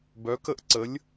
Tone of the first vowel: rising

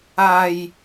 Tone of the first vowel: low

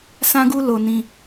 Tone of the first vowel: high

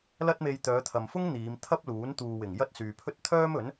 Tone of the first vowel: high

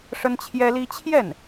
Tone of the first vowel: high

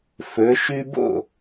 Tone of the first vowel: rising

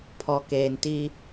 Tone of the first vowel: low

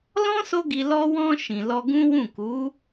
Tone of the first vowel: high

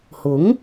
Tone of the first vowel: rising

